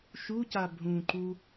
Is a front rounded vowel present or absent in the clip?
absent